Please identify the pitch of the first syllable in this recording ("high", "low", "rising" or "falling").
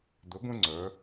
rising